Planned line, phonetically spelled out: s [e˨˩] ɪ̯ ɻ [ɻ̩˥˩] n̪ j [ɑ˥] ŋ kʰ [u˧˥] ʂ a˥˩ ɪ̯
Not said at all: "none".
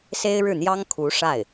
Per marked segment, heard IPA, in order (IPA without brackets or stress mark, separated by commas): e˥, ɻ̩˥˩, ɑ˥, u˧˥